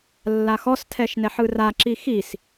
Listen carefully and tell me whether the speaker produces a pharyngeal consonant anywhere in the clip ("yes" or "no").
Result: yes